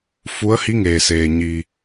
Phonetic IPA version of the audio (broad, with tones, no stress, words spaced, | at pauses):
fu˧˥ə̯hi˧˥ ŋeː˩seː˩ɲiː˩